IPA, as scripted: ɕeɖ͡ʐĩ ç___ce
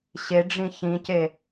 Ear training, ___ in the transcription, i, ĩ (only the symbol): ĩ